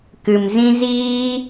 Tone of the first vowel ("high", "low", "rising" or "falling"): low